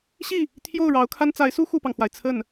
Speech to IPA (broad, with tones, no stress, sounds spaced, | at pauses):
ɕ i˥˩ | t̪ʰ j o˥˩ ʊ̯ ɻ ɑ˧˥ ʊ̯ kʰ a˥ n t͡s a˧˥ ɪ̯ s u˥ x u˥˩ p ɑ˩ ŋ x w a˩ ɪ̯ t͡sʰ ə˥˩ n